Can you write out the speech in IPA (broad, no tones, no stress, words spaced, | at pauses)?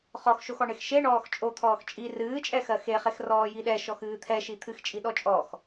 χɔxʃoxɔɳex ʃeɳɔːx t͡ʃʼot̪ʰɔːx t͡ʃʼi rɨːt͡ʃʼɛxɜ xeχex rɔːjiɗɛ ʃɔxɨːt̪ʰɛʃi t̪ʰɨxt͡ʃʼiɗɔ t͡ʃʼɔx